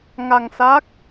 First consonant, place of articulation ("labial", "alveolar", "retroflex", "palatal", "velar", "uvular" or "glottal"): velar